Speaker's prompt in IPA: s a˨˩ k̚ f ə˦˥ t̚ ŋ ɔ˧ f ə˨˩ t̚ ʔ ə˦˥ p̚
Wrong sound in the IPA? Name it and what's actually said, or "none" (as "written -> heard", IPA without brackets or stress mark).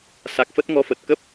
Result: ʔ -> k